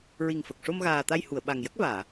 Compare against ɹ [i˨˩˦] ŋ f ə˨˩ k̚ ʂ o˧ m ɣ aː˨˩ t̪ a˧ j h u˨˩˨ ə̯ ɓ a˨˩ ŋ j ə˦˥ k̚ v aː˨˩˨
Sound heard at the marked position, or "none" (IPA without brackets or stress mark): i˨˩